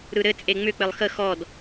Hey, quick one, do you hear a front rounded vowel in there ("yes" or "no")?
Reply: yes